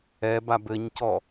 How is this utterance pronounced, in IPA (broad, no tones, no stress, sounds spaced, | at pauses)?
ɛ b a b ɘ ɲ c ɔ